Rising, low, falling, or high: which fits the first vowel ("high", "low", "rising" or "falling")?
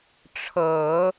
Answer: low